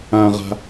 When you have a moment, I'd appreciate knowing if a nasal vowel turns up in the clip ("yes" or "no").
yes